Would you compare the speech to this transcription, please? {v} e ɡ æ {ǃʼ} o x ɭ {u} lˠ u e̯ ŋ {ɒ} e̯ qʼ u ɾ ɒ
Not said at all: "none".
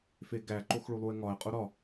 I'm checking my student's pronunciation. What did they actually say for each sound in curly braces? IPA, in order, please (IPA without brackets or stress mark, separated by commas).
f, ǃ, u, ɒ